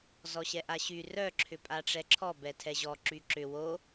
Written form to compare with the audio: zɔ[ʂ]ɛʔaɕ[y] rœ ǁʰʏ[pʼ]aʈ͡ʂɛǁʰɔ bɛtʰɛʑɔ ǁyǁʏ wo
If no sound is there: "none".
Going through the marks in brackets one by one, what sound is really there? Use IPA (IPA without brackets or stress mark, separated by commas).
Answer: ɕ, y, pʼ